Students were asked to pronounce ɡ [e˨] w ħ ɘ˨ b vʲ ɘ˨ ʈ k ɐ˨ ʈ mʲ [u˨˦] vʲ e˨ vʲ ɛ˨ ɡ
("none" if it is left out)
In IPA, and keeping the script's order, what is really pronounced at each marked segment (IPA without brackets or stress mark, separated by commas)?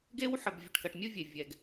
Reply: e˦, u˦